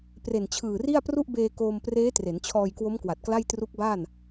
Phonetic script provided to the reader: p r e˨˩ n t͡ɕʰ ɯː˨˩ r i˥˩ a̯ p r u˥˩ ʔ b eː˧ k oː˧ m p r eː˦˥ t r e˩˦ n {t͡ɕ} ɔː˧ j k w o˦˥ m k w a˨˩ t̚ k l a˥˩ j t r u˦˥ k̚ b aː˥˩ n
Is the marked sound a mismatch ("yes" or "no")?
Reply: yes